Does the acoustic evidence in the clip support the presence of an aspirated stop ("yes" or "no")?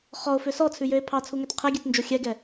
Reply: yes